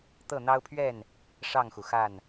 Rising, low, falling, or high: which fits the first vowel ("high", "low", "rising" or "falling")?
falling